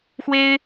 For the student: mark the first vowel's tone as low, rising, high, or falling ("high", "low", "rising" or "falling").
high